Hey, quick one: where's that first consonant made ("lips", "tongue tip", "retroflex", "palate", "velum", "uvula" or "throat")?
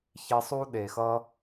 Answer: palate